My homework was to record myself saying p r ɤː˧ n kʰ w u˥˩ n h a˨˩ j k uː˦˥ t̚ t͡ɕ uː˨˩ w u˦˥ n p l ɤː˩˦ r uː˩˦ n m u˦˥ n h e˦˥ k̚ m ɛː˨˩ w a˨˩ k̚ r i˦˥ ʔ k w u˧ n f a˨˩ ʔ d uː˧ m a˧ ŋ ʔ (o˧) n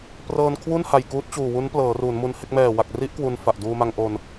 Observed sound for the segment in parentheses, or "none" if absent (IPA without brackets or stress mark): o˧